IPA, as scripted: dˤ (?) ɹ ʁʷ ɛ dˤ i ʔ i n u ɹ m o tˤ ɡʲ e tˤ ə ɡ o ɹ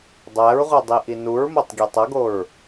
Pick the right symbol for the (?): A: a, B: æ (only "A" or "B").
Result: B